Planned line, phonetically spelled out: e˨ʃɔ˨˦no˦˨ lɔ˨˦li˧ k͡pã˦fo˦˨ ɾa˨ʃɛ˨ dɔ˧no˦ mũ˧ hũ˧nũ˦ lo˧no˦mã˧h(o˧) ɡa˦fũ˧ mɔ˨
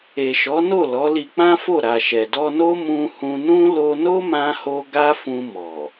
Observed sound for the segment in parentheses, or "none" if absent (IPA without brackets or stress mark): o˧